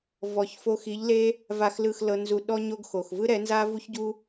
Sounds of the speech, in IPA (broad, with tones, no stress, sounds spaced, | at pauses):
v ɔ˨ ç f o˧ x i˨˦ ʎ l e˦ | v a˨ x l ɯ˨ x l ɤ˧ n z u˧ ɗ ɔ˦ ɲ o˦ ɡ x o˨ x v ɯ˦ ɾ ɛ˨˦ n z a˦ v u˦ ç ɟ u˦